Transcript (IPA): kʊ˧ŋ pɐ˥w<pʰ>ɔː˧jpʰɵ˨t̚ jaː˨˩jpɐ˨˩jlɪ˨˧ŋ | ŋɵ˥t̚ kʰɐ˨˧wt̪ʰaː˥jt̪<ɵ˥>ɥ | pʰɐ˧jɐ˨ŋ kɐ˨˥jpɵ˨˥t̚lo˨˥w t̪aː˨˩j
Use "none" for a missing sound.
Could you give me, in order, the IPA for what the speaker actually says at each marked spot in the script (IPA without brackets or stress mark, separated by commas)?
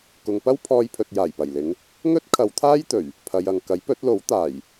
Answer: pʰ, ɵ˨˩